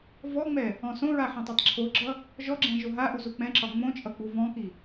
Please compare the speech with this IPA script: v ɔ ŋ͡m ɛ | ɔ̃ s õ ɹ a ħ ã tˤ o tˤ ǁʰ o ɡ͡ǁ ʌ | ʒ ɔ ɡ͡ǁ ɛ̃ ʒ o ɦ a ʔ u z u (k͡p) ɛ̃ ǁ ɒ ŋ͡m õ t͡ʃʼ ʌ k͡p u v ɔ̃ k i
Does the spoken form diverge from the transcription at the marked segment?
no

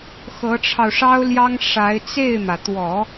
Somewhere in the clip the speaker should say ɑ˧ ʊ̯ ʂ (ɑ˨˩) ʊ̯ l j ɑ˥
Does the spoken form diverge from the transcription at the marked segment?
yes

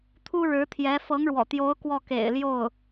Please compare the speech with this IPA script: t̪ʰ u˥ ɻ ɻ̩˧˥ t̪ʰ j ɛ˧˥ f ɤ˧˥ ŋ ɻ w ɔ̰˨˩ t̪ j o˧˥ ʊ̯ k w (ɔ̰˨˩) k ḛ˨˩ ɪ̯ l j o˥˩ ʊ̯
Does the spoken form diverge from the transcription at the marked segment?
yes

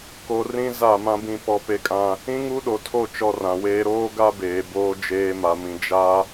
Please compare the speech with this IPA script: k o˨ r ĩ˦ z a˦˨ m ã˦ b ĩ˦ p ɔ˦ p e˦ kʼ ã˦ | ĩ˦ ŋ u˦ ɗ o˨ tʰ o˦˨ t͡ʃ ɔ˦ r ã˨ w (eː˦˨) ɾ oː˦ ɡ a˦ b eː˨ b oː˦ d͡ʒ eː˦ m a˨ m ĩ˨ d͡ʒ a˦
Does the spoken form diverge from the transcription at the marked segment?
yes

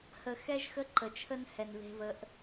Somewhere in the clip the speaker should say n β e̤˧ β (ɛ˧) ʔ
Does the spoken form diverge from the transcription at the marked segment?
yes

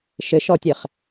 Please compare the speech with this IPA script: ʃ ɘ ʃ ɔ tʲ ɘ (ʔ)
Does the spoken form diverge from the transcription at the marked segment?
yes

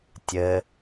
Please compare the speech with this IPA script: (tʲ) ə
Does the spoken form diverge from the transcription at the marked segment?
no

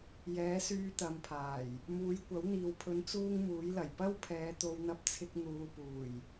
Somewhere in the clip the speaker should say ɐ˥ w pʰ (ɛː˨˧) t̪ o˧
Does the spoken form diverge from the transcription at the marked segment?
no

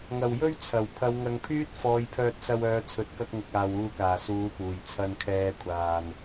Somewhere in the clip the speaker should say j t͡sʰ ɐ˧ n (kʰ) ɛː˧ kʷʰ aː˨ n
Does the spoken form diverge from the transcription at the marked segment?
no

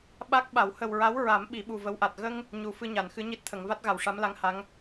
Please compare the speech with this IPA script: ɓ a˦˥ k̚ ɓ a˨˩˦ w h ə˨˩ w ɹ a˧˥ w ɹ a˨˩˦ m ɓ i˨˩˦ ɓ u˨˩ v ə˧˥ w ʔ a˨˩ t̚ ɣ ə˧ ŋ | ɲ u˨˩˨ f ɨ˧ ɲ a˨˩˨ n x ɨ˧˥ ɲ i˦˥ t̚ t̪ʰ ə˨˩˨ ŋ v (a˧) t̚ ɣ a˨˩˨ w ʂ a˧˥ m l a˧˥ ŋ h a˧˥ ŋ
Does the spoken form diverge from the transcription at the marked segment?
yes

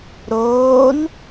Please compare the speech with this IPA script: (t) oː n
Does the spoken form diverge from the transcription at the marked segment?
yes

